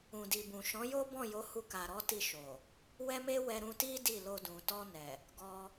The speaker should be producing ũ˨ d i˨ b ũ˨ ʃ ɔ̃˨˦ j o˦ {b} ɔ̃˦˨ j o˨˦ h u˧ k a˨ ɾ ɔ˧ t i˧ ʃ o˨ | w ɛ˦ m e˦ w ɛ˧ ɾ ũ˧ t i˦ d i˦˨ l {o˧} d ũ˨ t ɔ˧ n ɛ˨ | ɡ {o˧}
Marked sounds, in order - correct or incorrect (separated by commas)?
correct, correct, incorrect